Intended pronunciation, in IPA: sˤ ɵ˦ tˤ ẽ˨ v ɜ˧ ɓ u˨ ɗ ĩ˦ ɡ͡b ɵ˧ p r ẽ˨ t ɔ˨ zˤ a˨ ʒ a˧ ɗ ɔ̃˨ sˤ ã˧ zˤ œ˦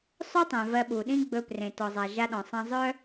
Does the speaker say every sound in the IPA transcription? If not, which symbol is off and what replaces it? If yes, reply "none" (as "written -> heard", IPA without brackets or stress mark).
none